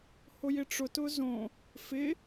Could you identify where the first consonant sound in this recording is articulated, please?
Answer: glottal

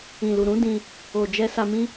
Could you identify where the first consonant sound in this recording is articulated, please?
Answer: alveolar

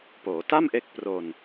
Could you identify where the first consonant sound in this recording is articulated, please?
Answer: labial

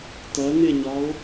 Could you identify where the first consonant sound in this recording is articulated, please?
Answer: alveolar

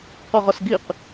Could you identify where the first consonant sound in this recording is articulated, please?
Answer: uvular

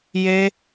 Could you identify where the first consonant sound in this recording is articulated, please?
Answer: palatal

